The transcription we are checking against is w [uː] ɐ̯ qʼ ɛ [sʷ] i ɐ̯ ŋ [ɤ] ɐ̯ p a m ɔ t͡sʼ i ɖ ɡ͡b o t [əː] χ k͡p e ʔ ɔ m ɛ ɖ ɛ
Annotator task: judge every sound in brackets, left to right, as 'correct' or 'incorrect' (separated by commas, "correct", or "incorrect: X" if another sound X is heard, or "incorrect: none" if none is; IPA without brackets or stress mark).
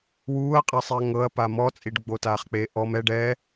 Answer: correct, incorrect: sˤ, correct, incorrect: aː